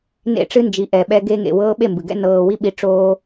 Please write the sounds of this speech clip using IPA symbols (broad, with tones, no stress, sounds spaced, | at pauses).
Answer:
n ḛ˧ ʈ͡ʂ ɨ˧ n d͡ʒ i˨ ʔ ɛ˨ ɓ ɛ˧ ɡ e˧ ŋ ḛ˨ w ɤː˧ ɓ e˦˨ m b ɨ˨ ɡ ɛ̰˧ n ɤː˨ w i˧ ɓ i˨˦ ʈ͡ʂ oː˦